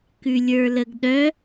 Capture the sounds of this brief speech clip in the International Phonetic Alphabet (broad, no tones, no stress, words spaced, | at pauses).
kʉlʲə˞ləɡɗœ